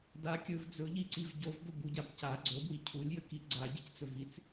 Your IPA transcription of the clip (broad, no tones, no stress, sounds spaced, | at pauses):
d a kʲ ɵ v d͡z ɵ ʎ i ǀ i v ɟ o v b ɵ b u ɟ a b c a ɡ͡ǀ o b w i cʰ u lʲ j ə k i ɡ͡ǀ a ɟ i c t͡s ɵ v i t͡s